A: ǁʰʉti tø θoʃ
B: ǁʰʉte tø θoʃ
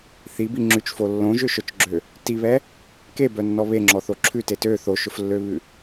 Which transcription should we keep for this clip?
B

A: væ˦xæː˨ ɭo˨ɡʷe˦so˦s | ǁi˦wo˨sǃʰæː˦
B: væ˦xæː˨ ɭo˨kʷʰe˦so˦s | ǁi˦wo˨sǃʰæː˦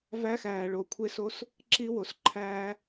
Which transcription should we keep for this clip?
B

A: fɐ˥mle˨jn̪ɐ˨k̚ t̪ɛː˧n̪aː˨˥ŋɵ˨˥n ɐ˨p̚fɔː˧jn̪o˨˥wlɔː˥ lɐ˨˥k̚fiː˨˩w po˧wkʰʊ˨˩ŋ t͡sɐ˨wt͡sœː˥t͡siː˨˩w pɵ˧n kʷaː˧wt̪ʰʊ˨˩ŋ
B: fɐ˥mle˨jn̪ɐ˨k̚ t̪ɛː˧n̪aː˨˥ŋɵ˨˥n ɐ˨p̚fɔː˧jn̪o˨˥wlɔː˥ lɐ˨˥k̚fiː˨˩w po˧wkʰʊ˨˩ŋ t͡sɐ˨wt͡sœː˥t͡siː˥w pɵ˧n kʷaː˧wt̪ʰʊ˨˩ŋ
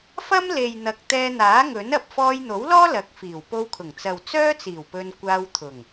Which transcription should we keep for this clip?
A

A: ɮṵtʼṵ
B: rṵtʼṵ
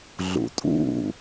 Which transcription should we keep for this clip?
A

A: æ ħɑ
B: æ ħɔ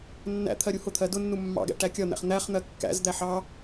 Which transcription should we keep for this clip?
A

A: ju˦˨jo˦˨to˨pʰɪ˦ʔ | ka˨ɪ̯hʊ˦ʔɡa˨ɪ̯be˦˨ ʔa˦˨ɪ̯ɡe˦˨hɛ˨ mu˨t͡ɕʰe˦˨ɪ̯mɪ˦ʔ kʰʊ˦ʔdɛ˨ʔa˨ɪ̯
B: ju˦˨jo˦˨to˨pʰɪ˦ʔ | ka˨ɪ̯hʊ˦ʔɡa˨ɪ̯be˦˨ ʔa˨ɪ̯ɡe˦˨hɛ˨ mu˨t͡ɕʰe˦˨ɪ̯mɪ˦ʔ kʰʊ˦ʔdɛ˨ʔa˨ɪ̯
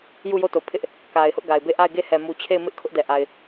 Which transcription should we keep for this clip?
A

